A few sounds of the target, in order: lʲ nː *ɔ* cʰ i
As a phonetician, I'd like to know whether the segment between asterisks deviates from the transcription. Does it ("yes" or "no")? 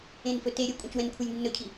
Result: yes